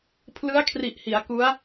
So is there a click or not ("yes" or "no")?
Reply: no